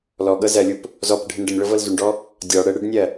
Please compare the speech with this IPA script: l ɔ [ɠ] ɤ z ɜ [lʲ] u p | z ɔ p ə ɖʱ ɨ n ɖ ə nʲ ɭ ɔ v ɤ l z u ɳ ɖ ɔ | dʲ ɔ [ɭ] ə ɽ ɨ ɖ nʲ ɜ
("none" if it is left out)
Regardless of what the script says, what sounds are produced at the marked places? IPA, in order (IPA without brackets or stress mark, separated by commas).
ɠ, lʲ, ɽ